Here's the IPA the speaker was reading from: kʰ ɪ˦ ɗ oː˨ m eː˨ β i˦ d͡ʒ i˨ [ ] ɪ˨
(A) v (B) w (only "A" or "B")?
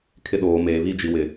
B